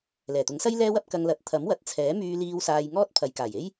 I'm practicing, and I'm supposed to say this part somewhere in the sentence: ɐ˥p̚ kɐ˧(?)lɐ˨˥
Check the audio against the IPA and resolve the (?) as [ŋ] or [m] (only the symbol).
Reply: ŋ